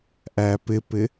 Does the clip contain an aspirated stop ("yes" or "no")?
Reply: no